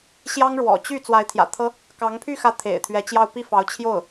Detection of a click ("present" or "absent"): absent